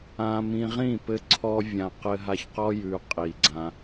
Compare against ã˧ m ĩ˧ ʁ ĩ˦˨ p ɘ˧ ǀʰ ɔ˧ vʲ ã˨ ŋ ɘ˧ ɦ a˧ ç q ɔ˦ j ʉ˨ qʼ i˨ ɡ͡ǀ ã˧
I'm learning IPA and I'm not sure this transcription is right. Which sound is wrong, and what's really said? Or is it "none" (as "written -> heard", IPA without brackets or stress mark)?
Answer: ŋ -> q